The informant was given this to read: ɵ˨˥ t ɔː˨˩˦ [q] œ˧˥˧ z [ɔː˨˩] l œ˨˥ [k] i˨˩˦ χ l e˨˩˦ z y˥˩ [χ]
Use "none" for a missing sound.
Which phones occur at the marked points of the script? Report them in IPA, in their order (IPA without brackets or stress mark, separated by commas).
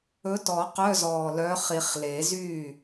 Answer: q, ɔː˨˩, χ, none